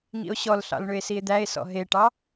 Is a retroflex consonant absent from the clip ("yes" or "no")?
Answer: no